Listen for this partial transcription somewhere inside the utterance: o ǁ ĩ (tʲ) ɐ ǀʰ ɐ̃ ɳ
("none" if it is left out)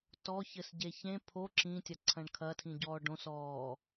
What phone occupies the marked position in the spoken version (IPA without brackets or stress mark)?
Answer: tʲ